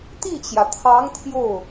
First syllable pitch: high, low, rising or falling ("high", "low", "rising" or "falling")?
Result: falling